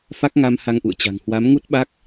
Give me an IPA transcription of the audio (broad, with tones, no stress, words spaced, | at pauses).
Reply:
fa˦˥k̚ŋa˧m ha˧ŋʔṵ˧˨ə̯t͡ɕa̤˨˩ŋ hwa˨˦mŋu˦˥t̚ɓa˦˥k̚